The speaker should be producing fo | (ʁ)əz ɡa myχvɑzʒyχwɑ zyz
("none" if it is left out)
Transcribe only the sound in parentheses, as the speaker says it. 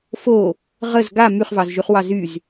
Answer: ʁ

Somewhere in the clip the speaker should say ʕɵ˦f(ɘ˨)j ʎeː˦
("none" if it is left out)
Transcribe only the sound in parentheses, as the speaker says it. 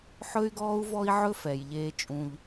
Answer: ɛ˨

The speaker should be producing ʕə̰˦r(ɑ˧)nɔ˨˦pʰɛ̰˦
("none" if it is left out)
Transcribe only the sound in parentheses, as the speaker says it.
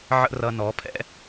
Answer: ʌ˧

